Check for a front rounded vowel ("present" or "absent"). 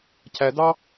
absent